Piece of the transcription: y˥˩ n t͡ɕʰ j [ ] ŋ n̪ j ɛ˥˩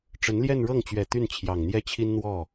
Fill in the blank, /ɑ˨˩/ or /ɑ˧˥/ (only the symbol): ɑ˨˩